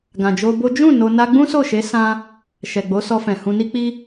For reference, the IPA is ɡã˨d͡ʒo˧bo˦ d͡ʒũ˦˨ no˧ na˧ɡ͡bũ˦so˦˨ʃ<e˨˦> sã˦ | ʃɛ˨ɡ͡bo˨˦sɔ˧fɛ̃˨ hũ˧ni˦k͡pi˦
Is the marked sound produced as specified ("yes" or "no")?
yes